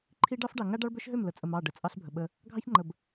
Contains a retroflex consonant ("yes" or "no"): yes